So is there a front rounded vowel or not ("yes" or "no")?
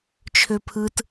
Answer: yes